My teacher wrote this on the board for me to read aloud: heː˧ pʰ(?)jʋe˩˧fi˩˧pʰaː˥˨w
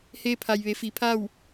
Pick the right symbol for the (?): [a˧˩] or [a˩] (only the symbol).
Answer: a˩